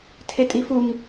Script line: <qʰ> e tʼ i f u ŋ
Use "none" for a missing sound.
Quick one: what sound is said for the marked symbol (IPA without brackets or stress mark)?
tʰ